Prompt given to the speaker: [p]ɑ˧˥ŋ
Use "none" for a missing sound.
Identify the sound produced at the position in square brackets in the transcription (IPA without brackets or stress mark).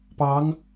p